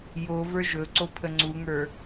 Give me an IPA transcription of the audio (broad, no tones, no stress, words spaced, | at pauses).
jo və˞ʒɵǀo pʰəŋ͡ǀuŋə˞